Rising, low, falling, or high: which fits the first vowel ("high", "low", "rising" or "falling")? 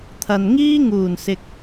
low